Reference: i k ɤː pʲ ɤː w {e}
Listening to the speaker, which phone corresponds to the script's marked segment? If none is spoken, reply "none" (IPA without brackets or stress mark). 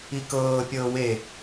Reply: e